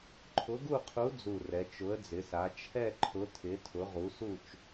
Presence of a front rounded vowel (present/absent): absent